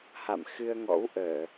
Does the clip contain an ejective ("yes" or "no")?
no